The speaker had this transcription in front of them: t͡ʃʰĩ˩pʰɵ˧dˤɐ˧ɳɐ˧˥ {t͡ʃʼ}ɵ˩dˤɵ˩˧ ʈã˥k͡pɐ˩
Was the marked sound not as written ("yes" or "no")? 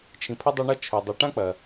yes